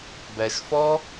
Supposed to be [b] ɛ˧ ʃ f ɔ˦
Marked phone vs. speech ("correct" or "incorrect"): correct